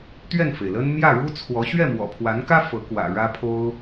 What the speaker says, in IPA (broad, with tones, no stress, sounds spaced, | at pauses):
t̪ ɥ ɛ˥˩ n f e˩ ɪ̯ l ə˥ n m j ä˥˩ ɻ u˥ t͡sʰ w ɔ˧˥ ɕ ɥ ɛ˥˩ m w ɔ̰˨˩ pʰ w a˧˥ n k ä˥ f ɤ˧˥ k w ä̰˨˩ ɻ ä˥ pʰ o˥ ʊ̯